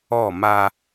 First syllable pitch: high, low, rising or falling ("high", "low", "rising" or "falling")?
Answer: falling